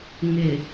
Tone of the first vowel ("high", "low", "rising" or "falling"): low